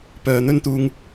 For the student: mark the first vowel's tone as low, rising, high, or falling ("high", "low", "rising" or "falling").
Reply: low